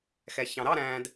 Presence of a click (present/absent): absent